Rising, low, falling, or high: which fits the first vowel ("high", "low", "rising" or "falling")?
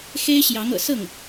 high